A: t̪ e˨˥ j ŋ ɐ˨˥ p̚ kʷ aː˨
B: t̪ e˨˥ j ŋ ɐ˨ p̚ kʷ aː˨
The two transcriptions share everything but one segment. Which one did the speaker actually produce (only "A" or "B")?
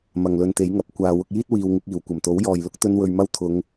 A